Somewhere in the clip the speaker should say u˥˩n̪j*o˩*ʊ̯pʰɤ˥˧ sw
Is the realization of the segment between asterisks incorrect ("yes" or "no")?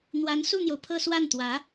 no